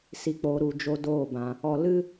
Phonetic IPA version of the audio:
s i˨ k͡p oː˨ ɾ u˨ d͡ʒ o˦ d oː˦˨ b ã˨ | ɔ˨ l ɨ˦

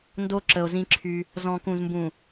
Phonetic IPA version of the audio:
n d o˦ ǁ ə˨ o̯ z ĩ˦ ǁʰ y˦ | z ɔ̃˨ k ũ˨ z m b ũ˨

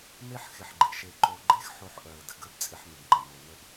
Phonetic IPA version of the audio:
m e˥ ħ x ɪ˨ ħ ɡ͡ǃ ɪ˩ ʃ e˨ ǃ o˨ ɡ͡ǃ e˥ x ħ o˦ ħ ʔ œ˩ ə̯ d ə˨ ɡ ə˥ b t͡sʼ ɪ˦ ħ m ɪ˨ b ŋ͡ǃ ə˩ m o˨ n ə˥ b

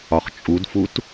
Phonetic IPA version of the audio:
ɒ χ t͡ʃʼ u d f u t

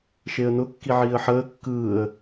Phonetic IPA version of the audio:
ʃ e ə̯ n ʊ kː i ʕ iː ə̯ ħ əː kː ɯː ə̯

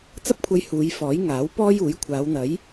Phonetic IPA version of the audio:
t͡s ɐ˥ p̚ kʷʰ ɐ˧ j h uː˨˧ j f ɔː˨˥ j ŋ aː˨˥ w p ɔː˥ j uː˨˥ j kʷʰ aː˨˧ w n̪ ɐ˨˥ j

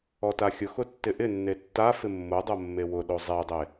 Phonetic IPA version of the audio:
ɔ t a xʲ ʊ x ʊ tː ɪ ʔ ɪ nː e tː a f ɪ mː o dˤ o mː e w ʊ ɗ o zˤ e dˤ e

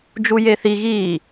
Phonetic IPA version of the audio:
d͡ʒ u j e θ i ɣ iː

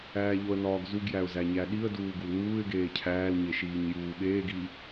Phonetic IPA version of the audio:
æː ʎ o ə̯ n ɒː ɡ z u ɡ j æ ʊ̯ z æ ɲ æ ɗ i ə̯ d uː ɡ u l n uː ɪ̯ ɡ eː cʰ æː l ɲ e ʃ iː ɲ j uː ɓ eː ɡ i

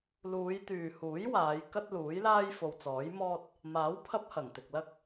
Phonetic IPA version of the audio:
l uː˨˧ j t̪ yː˨ h uː˨˥ j w aː˨˧ j k ɐ˥ t̚ l uː˨˥ j l aː˥ j f o˨ w t͡s ɔː˨˥ j m ɔː˥ t̚ | m aː˨˥ w pʰ ɐ˥ p̚ h ɐ˨˩ ŋ t̪ ɪ˨ k̚ l ɐ˥ k̚

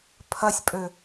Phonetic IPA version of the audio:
pʰ ɐ sʲ pʼ ø

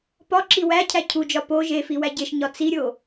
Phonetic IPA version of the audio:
p ɒ ǁ i w æ cʰ æ cʰ u d͡ʒ ɒ p o ʒ e f i w æ ɟ e ʃ ɲ ɒ t͡s i ɾʲ o

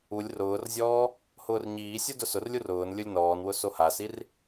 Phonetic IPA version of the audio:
u lʲ r ʊː r zʲ ɔː | h ʊː r ɲ iː sʲ u d ʊ s ʊ r lʲ u r ʊː n lʲ ʊ lʲ n ɔː n w ʊ s o h a s i r

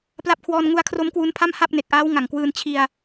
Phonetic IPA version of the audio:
p l a˦˥ p̚ kʰ w ɔː˧ n ŋ u˦˥ a̯ kʰ r o˦˥ m k w u˦˥ n pʰ a˥˩ m h a˥˩ p̚ n e˨˩ k̚ ʔ aː˦˥ w ŋ a˨˩ ŋ k w ɯː˧ n t͡ɕʰ i˧ a̯

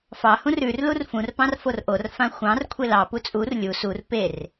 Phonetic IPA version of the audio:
f ɑ h ũ r ʉ r l u r f ũ r p ɑ̃ r f o r ʔ o r f ã xʷ ɑ̃ r kʷʰ e l ɑ p u t͡sʼ u r lʲ u s u r p e r

